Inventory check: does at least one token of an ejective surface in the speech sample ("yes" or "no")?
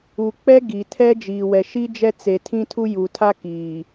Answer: no